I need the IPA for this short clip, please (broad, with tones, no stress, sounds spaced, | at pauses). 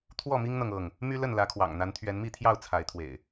t̪ʰ w ɔ˥˨ m i˦ ŋ n̪ ɤ˨ ŋ ɤ˥˨ ŋ | m y˦ l ə˥˨ n l ä˨˦ kʰ w ɑ̰˨˩ ŋ n̪ a˨˦ n t̪ʰ ɥ ɛ˨˦ n m i˥˨ t̪ʰ j ɑ˥˨ ʊ̯ t͡sʰ a˨˦ ɪ̯ t̪ʰ w ḛ˨˩ ɪ̯